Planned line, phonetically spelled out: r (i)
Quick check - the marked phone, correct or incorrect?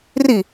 correct